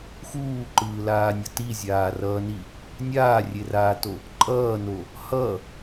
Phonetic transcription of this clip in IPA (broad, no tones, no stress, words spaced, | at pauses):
xuːǃɯːlaːnʲʌ tizʲaːrʌːni | nʲaːrʲeraːto | ǃʼʌːno | hʌ